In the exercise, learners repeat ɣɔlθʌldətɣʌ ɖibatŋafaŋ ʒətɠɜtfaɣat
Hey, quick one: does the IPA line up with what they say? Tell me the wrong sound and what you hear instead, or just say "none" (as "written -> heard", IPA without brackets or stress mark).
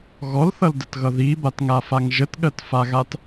ɖ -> ð